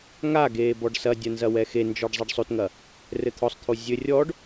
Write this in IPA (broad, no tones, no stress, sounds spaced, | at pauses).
ŋ a ɡ eː b ɔ ɖ s ɐ dʲ ɐ n z ɐ w ɛ x e n d͡ʒ ɔ ɖ zˤ ɛ ɖ sˤ o t ŋ ɐ | r ɘ t̪ʰ ɔ sˤ t̪ʰ o zʲ ɘ rʲ ɔ ɖ